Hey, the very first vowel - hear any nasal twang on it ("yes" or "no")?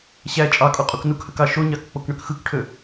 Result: no